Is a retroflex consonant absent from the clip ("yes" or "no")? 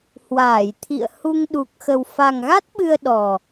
yes